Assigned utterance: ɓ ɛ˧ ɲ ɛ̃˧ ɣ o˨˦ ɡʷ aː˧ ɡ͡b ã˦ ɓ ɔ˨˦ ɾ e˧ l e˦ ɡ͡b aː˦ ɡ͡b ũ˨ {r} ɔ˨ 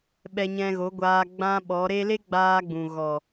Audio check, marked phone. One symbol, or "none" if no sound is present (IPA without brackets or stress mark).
ɣ